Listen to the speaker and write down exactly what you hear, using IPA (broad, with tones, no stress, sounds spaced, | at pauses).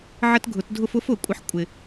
ʕ ə˦ t ɡʱ ʊ˨˩˦ t dʱ ʊ˦ f ʊ˨˥ f ʊ˨˩˦ kʷʼ ɪ˨˥ ħ kʷʼ ɪ˨